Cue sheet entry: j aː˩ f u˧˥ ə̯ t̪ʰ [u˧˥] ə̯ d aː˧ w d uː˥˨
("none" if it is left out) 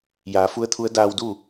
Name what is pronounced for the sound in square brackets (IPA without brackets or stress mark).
u˧˥